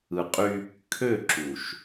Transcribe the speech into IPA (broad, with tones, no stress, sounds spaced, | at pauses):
ɯ˨ qʼ y˦ | kʰ ø˦˨ ǁ u˨ ʃ